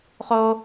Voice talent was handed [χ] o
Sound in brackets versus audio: correct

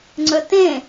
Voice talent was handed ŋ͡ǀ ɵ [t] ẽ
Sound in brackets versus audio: correct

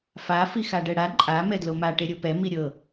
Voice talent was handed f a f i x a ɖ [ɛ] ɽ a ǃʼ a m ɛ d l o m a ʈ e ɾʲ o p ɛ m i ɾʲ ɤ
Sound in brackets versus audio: correct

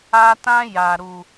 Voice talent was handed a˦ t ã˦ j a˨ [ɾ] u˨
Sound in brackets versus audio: correct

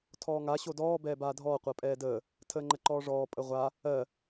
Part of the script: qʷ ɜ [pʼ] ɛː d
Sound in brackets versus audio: correct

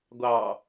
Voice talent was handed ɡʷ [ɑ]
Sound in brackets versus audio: correct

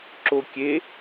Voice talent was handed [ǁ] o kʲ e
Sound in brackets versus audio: correct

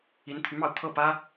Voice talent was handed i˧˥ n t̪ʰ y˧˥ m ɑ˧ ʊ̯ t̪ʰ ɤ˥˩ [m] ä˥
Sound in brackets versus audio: incorrect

